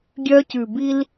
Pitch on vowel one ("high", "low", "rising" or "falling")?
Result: high